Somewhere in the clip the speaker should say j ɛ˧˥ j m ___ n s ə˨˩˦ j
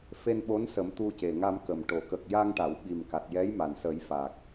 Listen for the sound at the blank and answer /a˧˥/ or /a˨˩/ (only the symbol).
a˨˩